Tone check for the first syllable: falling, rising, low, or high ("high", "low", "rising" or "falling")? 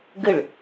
falling